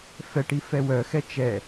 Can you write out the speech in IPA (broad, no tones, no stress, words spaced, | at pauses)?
fɛʈi fɛwœxɛ t͡ʃɛ